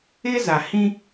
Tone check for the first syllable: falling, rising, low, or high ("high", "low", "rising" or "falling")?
high